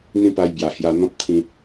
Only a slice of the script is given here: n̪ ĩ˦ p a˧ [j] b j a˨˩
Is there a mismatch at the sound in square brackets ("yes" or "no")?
no